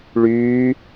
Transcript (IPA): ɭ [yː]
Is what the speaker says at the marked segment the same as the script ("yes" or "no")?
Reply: yes